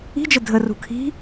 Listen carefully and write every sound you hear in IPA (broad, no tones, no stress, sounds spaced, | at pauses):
i̤ d͡ʒ ə dʱ ə r ṳ kʰ i̤